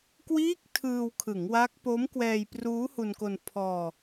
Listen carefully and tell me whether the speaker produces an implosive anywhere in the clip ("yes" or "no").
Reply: no